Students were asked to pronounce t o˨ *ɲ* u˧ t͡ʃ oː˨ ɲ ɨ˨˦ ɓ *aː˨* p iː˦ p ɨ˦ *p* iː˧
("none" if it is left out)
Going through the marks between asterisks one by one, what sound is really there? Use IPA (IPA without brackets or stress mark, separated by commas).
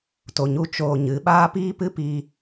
ɲ, aː˦, p